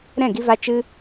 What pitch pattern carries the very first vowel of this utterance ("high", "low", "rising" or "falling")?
falling